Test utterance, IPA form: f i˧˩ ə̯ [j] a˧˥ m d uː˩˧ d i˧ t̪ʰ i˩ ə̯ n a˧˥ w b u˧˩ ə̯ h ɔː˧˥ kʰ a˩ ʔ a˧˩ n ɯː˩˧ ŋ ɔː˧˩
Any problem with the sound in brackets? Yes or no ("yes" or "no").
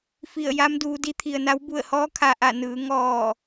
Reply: no